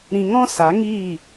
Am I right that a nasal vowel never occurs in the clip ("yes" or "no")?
no